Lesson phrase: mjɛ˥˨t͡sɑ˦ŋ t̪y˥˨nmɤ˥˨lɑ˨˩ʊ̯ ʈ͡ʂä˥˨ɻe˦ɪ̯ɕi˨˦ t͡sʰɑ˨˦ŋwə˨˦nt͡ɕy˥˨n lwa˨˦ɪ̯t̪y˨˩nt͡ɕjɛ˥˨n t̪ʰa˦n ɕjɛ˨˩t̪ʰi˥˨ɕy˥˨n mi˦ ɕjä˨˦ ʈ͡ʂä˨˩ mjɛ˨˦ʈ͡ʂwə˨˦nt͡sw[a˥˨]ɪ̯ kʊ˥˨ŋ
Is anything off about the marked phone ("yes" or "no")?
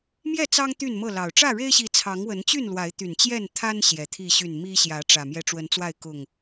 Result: no